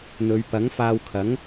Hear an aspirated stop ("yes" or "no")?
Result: yes